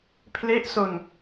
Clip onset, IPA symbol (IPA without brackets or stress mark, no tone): pʰ